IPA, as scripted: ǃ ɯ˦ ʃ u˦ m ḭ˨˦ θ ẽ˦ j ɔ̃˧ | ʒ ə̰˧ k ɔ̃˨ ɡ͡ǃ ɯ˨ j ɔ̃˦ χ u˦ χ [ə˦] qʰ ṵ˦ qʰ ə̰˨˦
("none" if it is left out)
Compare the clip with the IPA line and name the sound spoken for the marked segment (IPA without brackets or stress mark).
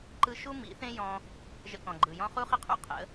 ə˦